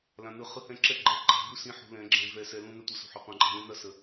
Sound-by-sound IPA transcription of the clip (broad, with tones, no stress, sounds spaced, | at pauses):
l ã˨ n ɯ˨˦ χ ɯ˧ h ɛ̃˦˨ ǁ ɛ˦ ɡ͡ǃ ɛ˨˦ ɡ͡ǃ a̤˨ b u˦ s ĩ˧ ħ ṳ˧ l ɛ̃˨˦ ɡ͡ǁ ɛ̃˧ v ɛ˧ s ɛ˧ l ũ˦ n ɛ˦ tʷ ə˨ s ṳ˨ ħ ʏ˨ qʷ ã˧ ǃʼ ɛ̤˧ l ũ˦ n ɐ˦ s ə˨